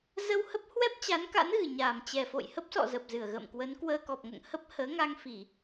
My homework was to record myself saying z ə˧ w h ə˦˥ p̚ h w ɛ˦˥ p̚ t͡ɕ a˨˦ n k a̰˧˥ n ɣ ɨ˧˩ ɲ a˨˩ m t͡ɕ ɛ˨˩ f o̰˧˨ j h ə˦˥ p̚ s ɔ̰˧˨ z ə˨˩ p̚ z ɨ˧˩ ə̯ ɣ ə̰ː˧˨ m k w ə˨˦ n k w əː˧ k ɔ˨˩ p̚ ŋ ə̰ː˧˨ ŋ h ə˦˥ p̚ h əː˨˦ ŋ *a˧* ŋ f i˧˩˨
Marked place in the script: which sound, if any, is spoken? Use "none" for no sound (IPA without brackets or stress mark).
a˧